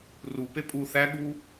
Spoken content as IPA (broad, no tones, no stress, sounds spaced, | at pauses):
r u p e pʼ u θ æ ɠ u